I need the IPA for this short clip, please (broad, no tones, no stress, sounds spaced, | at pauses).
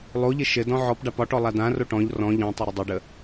lˠ o ʎ ɘ ʃ ɘ d ɔ̃ ʕ ɔ p ɖ a p ɒ ʈ ɔ lˠ a d ã r o ʈ ɔ̃ ʎ r ɔ̃ ʎ ɔ̃ tˤ ə ɾ ə dˤ ɘ ɖ ə